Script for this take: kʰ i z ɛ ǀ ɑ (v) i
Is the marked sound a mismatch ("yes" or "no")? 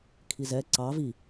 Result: no